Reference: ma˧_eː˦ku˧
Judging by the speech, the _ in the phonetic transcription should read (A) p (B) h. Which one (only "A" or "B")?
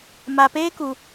A